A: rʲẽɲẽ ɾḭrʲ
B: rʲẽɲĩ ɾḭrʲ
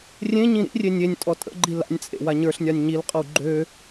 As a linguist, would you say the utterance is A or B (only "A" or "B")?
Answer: B